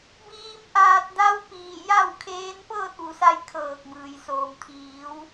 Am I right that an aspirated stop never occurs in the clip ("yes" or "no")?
no